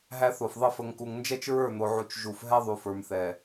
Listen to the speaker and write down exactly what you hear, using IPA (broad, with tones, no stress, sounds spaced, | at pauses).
ɦ æ˦ θ o˨ f ðˤ ə˦ f ə˨ ŋ k u˨ ŋ n d͡ʒ ɛ˦ t͡ʃ ɹ ə˞˦˨ n̪ o˨ ʕ u˨ t͡ʃ ʒ u˨ f ɦ ɛ˦ ðˤ u˨ f ə˞˨ m θ ɛ˨